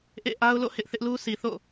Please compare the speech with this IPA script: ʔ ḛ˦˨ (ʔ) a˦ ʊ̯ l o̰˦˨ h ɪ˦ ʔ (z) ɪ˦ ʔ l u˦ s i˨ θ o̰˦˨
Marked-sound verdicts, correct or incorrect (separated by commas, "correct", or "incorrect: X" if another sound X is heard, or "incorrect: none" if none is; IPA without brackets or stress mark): correct, incorrect: θ